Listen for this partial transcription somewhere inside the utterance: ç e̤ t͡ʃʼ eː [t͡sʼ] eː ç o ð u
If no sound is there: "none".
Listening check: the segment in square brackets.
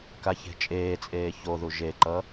t͡sʼ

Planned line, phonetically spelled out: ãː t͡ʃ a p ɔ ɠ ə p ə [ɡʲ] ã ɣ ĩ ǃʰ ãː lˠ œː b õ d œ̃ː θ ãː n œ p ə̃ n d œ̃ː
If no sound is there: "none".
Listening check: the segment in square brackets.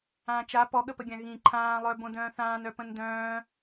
ɡʲ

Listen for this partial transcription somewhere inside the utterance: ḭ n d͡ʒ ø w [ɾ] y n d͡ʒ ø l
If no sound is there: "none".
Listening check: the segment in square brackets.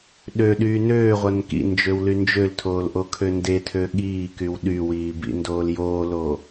l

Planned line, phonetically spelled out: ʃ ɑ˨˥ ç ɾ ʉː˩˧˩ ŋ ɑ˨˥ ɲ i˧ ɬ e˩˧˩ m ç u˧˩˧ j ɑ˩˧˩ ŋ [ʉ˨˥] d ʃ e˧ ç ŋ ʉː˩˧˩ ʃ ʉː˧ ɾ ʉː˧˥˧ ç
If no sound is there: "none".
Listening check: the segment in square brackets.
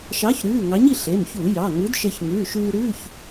ʉ˨˥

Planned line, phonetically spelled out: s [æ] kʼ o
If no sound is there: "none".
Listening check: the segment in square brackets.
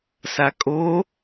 a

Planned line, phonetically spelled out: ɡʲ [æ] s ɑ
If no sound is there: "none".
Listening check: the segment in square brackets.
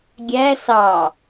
æ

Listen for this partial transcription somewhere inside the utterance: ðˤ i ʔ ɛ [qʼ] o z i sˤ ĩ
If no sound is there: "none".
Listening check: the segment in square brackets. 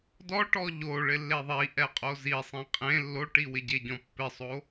qʼ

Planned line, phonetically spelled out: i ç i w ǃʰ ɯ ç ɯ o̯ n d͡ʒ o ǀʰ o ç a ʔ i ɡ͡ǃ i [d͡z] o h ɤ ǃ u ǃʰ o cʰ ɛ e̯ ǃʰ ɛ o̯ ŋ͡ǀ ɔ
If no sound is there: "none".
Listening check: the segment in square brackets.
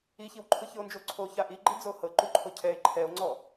d͡z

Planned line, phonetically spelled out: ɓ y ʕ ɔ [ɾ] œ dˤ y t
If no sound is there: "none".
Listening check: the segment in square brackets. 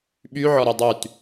ɾ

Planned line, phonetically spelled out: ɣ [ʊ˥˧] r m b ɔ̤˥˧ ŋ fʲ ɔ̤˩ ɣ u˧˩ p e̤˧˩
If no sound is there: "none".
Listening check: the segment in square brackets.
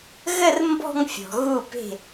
ə˥˧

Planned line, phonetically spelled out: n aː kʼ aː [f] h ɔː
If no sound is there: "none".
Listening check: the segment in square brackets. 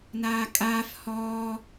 f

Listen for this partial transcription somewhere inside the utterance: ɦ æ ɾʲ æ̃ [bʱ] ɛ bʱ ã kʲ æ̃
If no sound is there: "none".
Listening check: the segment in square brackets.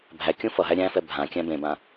f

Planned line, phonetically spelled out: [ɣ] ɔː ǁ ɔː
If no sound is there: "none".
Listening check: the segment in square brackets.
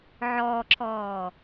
ʕ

